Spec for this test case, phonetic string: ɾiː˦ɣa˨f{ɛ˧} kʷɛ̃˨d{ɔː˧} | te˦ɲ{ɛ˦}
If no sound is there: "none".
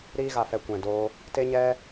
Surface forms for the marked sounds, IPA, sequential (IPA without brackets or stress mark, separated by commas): ɛ˧, oː˧, ɛ˦